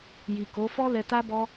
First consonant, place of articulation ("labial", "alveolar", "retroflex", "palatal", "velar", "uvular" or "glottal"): palatal